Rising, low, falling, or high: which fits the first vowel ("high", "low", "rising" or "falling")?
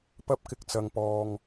high